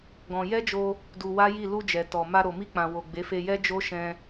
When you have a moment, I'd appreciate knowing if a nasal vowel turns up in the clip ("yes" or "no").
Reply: yes